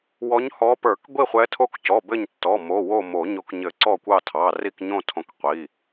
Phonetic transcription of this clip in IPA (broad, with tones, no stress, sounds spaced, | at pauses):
w ɔ˨˦ ɲ h ɔ˨˦ p ə˞˨˩˦ k ɡʷ i˦˨ χʷ ɛ˨˦ tʰ o˦˨ k c ɔ˩˧˩ b ɘ˦˨ ɲ tː ɔ˩˧˩ m o˩˧˩ w o˦˨ m o˨˩˦ ɲ o˨˩˦ k ɲ ɘ˨˩˦ ǀ ɔ˦˨ kʷ ɑ˦˨ tʰ ɑ˩˧˩ r i˦˨ k ɲ õ˦˨ tʰ õ˨˩˦ k qʷ i˩˧˩